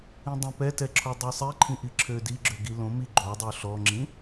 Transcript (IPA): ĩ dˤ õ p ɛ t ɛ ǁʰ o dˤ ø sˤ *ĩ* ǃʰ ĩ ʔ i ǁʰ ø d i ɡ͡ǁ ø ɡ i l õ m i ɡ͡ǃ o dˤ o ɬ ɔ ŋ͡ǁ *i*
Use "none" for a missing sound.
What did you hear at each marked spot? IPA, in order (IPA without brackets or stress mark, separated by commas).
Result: i, ĩ